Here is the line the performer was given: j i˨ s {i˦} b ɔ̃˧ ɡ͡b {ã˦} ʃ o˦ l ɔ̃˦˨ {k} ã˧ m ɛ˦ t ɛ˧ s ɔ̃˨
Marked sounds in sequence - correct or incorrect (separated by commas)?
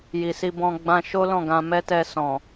incorrect, incorrect, incorrect